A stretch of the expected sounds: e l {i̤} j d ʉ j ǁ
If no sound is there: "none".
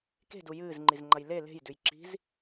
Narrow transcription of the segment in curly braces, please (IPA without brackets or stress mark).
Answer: e̤